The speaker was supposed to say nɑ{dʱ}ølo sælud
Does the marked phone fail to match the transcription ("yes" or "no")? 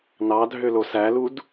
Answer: no